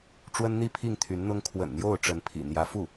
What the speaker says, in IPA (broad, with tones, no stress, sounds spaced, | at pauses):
ʈ͡ʂ w ə˥ n n̪ i˥˧ pʰ i˥˩ ŋ t̪ʰ y˧˥ n n̪ ʊ˥ ŋ kʰ w ə̰˨˩ n n̪ j o˥˩ ʊ̯ ʈ͡ʂ ə˧˥ n pʰ ḭ˨˩ n̪ j ä˧˥ f u˥˩